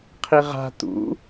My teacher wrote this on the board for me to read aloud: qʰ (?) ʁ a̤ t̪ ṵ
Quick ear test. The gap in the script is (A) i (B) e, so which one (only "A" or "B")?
A